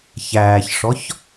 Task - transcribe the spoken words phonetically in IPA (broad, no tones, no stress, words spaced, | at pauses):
çæːçʂɔç